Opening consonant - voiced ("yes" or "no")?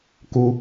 no